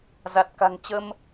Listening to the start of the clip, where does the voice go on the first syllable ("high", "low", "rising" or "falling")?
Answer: low